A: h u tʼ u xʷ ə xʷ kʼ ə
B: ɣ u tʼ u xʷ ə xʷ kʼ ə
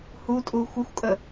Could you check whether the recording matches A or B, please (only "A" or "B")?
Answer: A